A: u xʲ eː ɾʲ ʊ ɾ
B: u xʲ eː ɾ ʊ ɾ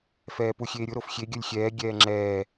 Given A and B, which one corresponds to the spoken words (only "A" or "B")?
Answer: A